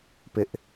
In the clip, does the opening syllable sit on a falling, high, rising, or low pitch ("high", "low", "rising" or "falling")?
high